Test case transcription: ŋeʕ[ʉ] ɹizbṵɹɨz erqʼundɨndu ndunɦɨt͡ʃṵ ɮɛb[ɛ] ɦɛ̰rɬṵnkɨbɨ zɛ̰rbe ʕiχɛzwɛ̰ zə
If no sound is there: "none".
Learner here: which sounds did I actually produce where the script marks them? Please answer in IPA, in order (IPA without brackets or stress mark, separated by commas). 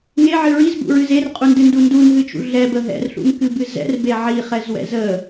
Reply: ɨ, ə